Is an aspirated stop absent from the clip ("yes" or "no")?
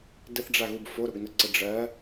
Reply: yes